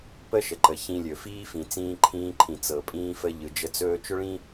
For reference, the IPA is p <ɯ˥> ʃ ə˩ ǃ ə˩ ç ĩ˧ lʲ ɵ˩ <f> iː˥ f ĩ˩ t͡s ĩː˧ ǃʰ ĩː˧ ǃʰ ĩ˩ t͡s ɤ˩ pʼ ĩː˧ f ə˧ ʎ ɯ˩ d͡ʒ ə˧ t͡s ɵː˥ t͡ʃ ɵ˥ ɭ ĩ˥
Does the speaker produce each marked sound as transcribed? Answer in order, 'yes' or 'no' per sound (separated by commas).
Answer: no, yes